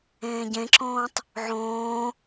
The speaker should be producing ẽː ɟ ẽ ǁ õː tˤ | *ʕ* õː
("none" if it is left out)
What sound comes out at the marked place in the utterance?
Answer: ʕ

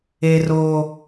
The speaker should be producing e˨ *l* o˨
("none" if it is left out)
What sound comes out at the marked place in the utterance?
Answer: r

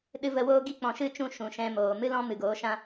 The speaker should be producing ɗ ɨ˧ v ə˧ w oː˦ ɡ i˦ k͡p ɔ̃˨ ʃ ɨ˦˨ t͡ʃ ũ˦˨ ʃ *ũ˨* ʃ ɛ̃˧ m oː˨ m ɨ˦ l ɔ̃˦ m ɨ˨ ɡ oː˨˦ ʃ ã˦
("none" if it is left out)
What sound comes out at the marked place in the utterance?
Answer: ũ˨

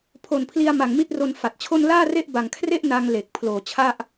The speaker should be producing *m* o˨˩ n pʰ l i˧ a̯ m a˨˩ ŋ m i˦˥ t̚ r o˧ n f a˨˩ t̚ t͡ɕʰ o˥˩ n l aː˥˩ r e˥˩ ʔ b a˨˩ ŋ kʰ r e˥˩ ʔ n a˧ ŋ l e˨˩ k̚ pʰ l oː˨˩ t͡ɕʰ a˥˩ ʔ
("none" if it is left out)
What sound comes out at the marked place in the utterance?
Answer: pʰ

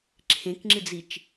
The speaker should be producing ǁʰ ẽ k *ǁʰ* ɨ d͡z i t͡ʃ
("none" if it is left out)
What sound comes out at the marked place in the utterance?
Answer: ŋ͡ǁ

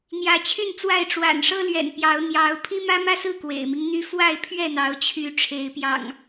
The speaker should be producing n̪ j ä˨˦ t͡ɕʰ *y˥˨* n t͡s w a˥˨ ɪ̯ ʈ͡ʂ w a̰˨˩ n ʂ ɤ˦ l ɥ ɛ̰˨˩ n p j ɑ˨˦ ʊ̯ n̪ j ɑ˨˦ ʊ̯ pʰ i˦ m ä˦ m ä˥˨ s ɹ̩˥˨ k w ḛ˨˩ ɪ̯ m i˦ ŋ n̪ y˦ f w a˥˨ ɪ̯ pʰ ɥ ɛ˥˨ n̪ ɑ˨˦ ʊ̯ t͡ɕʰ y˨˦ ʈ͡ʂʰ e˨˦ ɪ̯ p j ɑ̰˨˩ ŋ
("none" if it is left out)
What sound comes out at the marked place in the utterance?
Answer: y˥˨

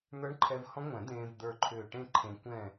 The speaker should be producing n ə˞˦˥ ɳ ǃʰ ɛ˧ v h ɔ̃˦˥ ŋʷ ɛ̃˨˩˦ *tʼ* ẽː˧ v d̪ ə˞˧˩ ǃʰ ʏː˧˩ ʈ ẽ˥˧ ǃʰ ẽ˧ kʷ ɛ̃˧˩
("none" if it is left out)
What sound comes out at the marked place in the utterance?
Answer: d̪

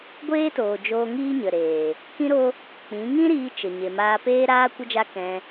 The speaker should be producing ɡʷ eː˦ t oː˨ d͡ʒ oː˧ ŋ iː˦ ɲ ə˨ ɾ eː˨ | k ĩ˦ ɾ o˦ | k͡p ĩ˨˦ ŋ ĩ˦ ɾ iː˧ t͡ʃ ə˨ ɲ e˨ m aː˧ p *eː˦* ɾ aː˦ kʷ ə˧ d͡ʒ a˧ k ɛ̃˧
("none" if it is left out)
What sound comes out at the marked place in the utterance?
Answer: eː˦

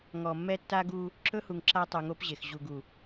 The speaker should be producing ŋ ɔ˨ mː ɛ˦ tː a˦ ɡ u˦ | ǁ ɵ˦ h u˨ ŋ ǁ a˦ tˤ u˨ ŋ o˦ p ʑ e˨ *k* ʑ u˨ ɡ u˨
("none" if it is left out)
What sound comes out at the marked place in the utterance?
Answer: x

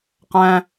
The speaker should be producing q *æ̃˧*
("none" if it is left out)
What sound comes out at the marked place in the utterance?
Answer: æ̃˧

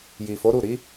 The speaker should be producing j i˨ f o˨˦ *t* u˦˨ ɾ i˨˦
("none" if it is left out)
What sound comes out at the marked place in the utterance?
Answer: ɾ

